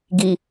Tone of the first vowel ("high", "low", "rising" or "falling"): low